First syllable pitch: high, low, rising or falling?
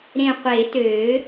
low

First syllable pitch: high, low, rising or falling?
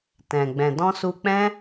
low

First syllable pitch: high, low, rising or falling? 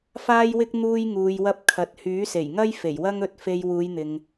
high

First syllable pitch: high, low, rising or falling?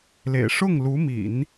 low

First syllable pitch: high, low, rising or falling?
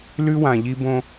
high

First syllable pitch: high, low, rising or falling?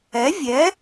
rising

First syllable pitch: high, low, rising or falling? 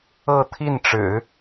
falling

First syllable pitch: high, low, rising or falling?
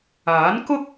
rising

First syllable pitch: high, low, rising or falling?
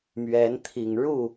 rising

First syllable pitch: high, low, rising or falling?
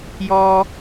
high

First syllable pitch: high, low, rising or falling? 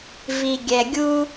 low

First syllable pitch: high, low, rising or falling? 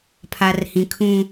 low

